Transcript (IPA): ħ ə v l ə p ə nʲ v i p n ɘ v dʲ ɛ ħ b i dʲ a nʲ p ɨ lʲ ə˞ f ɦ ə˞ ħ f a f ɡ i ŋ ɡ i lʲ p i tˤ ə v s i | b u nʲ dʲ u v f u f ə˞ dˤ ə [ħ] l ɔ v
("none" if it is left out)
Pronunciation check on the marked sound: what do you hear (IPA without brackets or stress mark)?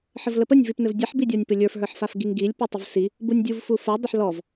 ħ